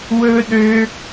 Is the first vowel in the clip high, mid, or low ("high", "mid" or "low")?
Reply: mid